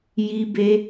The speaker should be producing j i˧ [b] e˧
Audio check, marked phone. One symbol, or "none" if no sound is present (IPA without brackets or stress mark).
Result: b